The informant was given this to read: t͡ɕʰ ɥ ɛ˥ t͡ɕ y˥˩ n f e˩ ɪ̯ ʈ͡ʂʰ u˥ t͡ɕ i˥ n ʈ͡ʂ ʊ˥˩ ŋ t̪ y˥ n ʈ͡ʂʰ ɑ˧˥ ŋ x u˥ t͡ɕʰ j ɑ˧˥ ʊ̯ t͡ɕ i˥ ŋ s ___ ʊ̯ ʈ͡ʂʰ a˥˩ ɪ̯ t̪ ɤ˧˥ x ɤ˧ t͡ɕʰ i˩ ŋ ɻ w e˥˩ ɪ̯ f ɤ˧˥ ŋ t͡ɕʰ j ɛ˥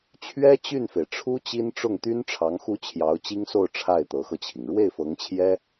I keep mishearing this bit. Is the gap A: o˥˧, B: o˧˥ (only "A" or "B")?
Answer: A